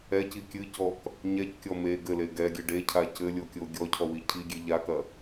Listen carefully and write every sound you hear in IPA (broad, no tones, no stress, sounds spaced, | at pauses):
ɛ c i kʲ ɨ c ɔ k | ɲ ɛ c kʲ ɔ m e ɡ ɘ l e ɡ ɛ ɡʲ ɘ ɖ e cʰ a c ɘ lʲ o kʲ o ɡʲ ɔ cʰ ɔ w i cʰ i ɡʲ e ʎ a k ɐ